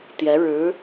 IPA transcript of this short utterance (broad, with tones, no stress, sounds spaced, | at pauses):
t̪ j ɛ˧˥ ɻ ɻ̩˧˥